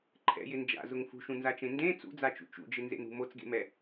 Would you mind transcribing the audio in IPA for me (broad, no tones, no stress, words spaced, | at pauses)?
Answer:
ǃʰɛ̰jɪ nd͡ʒa̰zʊŋ fṳʃũnzat͡ʃẽ ndẽ t͡sṵd͡zat͡ʃṵ t͡ʃṵd͡ʒɪnzḛnṳ mot͡sɡḛmɛ